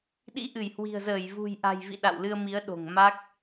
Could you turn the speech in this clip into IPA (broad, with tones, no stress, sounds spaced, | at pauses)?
ɗ ḭ˧˥ ʔ ɨ˧˩ j h w i̤˨˩ ə̯ z əː˧˩ j v ṳ˨˩ j ʔ a̤˨˩ j v ḭ˧˨ ɗ a̰˧˨ w l ɨ˧ ə̯ m i˨˦ ə̯ ɗ o̤˨˩ ŋ m a˦˥ k̚